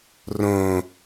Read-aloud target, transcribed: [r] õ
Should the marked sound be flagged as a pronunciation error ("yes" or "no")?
no